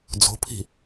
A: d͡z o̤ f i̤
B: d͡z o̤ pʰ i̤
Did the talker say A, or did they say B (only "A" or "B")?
B